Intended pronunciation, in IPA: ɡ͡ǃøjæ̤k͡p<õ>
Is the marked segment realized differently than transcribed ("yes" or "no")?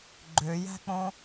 no